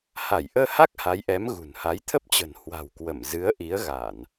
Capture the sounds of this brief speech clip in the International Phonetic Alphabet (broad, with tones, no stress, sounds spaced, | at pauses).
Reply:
h a˧˩ j ʔ əː˧ h a˦˥ k̚ h a˨˦ j ʔ ɛ˨˦ m ɣ ṳ˨˩ n h a˨˦ j t̪ʰ ə˦˥ p̚ t͡ɕ ə̤˨˩ n h w a̤˨˩ w k w ə˧˩ m z ɨ˨˦ ə̯ ʔ i˨˦ ə̯ ɣ a˧˩˨ n